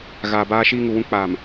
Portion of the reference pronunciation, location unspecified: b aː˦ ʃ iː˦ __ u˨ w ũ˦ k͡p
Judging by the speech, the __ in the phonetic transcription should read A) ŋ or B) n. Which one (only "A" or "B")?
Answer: A